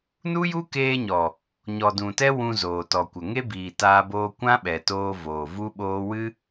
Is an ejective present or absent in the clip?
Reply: absent